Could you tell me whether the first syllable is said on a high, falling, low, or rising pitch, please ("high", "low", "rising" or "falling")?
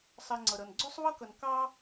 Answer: low